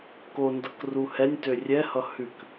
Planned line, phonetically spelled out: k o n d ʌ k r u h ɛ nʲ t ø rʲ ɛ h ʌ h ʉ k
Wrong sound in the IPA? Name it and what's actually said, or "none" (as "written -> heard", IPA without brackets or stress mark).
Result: none